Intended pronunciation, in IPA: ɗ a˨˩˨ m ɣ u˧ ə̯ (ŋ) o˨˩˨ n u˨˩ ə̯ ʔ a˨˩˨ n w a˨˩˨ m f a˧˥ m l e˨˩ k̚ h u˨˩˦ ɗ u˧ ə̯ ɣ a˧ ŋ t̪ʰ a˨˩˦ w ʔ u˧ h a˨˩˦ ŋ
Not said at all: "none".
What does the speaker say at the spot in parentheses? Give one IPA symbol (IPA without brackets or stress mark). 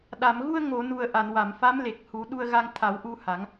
ŋ